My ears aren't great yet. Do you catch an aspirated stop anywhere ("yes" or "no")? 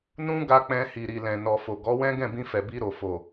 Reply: no